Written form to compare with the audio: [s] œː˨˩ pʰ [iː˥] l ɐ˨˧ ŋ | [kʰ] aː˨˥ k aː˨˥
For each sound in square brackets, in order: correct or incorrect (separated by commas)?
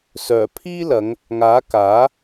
correct, correct, incorrect